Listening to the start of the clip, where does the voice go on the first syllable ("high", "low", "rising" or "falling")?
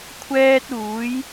high